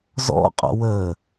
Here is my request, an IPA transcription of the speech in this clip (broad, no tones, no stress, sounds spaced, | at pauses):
z ɔ̰ qʼ ɔ̰ w ə